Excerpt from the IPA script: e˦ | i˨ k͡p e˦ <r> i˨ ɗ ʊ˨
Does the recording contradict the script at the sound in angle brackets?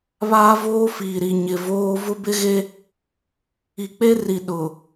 no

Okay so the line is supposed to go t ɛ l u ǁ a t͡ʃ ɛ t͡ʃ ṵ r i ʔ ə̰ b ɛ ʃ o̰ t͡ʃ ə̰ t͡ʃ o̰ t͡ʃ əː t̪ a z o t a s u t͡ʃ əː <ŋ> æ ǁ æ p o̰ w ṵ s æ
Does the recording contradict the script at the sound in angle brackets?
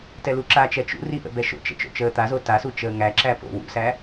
no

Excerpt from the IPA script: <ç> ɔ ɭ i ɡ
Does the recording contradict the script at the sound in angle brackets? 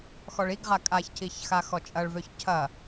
yes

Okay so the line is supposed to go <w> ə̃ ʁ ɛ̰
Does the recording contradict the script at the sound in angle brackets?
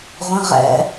yes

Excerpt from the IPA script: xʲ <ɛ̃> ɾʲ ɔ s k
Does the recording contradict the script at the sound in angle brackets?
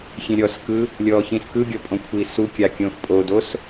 yes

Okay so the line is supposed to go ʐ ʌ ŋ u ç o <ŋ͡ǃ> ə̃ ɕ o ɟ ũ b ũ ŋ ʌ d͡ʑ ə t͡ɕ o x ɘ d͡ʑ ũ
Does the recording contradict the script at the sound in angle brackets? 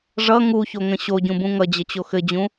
yes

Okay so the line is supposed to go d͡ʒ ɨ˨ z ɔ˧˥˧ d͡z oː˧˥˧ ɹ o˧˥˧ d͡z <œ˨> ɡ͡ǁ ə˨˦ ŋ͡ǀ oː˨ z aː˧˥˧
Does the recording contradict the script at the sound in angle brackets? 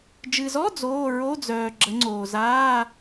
yes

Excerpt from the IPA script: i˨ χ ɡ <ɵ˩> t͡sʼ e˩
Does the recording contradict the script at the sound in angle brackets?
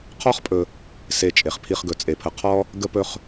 no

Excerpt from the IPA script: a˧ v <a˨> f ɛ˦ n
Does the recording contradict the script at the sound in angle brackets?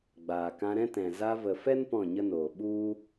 yes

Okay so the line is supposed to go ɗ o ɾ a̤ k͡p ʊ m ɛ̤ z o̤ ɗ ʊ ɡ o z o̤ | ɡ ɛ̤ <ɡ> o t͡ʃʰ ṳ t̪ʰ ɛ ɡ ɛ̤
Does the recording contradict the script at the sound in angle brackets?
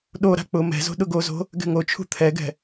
yes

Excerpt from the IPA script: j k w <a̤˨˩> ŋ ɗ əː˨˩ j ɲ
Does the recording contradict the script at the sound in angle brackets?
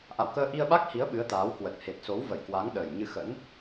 yes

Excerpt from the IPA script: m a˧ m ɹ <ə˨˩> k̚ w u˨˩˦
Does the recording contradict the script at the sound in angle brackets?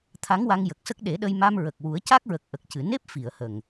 no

